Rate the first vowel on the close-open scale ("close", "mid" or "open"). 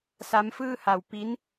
open